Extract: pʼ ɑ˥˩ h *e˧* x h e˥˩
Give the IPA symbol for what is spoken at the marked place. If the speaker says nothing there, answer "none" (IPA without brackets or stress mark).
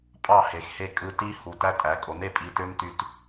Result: e˩